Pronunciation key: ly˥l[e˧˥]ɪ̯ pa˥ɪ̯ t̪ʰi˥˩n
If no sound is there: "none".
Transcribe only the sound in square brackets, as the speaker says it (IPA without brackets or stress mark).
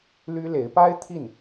e˧˥